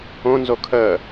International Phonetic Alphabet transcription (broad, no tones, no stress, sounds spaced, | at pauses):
õ n z o kʰ əː